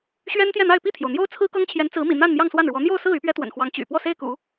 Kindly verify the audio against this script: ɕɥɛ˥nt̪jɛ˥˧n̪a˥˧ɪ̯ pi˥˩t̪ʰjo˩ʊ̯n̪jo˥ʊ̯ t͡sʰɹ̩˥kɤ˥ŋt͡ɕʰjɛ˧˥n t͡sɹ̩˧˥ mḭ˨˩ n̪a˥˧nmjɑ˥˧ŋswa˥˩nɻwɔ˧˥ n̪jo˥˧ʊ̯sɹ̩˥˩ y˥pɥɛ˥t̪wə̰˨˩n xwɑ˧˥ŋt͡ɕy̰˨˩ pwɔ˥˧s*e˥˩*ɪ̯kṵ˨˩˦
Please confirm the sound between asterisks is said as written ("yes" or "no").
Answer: yes